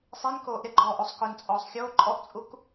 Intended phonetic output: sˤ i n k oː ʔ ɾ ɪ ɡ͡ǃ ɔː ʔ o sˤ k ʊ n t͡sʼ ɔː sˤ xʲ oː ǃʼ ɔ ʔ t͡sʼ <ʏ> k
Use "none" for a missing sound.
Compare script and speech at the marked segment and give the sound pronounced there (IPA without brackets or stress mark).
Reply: u